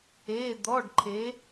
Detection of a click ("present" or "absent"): present